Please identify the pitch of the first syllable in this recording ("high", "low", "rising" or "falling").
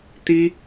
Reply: high